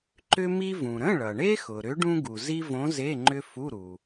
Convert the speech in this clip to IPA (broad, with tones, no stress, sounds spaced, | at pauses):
ǃ ʏ˥ m i˥ v ũ˩ ɾ ə̃˧˥˧ ɭ ʌ˩ ɳ e˥ x ʊ˩ ɾ ʏ˧˥ ɖ ũ˥ ɡ u˩ z i˥ v õ˧˥ z e˧˥˧ ŋ͡ǃ ʏ˥ f u˧˥˧ ɾ u˩